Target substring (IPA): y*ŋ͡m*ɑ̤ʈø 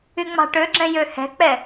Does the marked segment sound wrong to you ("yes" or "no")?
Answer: no